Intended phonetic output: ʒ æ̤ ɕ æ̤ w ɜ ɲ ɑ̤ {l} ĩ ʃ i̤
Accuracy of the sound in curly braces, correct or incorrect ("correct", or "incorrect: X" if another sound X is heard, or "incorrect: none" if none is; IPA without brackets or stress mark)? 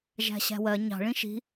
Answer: incorrect: ɭ